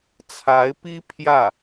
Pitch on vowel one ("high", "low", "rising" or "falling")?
rising